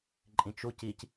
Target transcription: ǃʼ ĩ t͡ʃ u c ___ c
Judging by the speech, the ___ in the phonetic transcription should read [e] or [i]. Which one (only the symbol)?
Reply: i